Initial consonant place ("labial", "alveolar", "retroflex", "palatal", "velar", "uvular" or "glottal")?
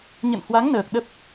palatal